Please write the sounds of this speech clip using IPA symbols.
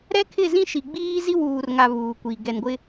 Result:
ɾɛ˦kʰɪ˦˨ zĩ˦ʃi˨ ɡ͡biː˦zi˦ wuː˨rŋa˨ βuː˨kʷiː˨ ɡɛ˨nɡʷɪ˦

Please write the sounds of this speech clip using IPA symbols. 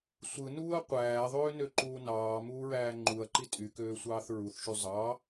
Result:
sʷɯ nuːɐ̯qʷæːðˤøːnø ǃuːnɑːmuːɹæː ŋ͡ǃuɐ̯ǃi tʼykøːsʷɑːθ ɹuθʃy zˤɑ

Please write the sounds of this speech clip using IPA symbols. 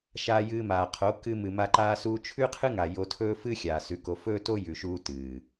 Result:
ʃaː˧jɨː˧maː˨qʰo˨˦ kɨ˧ mɨ˨ma˧ ǃaː˧suː˧t͡ʃʰʉ˦qʰɨ˦ ŋa˨ jo˧tʰɵː˦fɨ˦ xʲaː˨sʉ˨˦ko˧ fɵː˦to˦jʉ˨ʃuː˧ tɨː˨

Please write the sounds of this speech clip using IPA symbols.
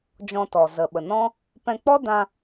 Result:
d͡ʒɔ̃˧tɔ˨ zə˨ɓə˨nɔ̃˦ | pɛ̃˧k͡pɔ˦dã˧

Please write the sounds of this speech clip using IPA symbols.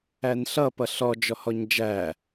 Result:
ænɬʌ pʌɬɔ d͡ʒɔhɔɲd͡ʒæ

